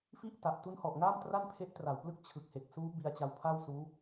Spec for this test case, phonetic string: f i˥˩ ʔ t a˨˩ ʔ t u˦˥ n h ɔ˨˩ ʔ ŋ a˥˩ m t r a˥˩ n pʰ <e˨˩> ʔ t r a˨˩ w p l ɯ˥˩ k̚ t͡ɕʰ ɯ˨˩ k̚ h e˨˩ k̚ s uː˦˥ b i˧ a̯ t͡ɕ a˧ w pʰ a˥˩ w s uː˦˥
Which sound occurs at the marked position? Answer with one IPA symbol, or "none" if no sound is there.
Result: e˦˥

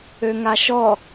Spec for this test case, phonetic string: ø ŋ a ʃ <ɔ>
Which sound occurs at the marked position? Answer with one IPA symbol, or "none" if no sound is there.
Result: ɔ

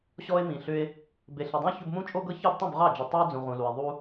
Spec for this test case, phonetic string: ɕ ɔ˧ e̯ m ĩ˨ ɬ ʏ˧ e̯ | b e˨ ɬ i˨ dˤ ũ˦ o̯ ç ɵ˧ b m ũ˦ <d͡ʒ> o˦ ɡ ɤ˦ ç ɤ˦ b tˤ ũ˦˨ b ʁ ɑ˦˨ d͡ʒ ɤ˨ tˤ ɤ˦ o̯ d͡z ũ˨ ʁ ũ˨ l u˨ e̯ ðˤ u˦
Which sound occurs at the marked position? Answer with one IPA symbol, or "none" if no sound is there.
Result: t͡ʃʼ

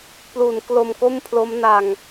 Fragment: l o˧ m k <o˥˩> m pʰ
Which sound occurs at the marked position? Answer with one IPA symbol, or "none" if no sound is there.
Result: o˥˩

